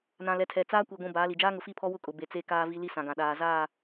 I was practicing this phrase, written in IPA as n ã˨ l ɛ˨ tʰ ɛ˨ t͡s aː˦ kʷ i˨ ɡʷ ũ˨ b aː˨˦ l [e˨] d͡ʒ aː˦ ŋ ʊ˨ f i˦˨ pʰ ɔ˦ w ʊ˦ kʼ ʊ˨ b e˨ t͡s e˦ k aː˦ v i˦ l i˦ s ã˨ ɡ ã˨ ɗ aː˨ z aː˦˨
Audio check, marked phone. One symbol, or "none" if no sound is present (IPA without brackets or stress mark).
i˨